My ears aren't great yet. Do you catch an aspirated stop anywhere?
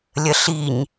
no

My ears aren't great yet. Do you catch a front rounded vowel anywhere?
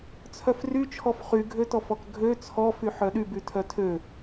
yes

